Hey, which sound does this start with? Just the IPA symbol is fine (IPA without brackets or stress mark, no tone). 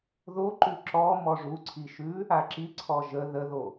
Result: ð